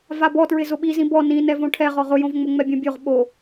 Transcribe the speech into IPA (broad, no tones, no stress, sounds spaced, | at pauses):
v a b ɔ t ɹ ɪ z ʊ ɓ i z ĩ b ɔ n ĩ n ɛ v õ ʈʰ ɛ ʁ ɔ ʁ ʊ j õ v ŋ͡m ʊ ŋ͡m ɛ bʲ õ bʲ o ʁ ɓ o